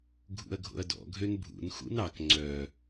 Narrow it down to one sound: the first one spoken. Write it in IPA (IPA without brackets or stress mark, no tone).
ɡʱ